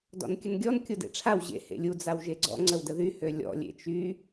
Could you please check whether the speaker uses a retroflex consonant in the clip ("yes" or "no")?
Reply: yes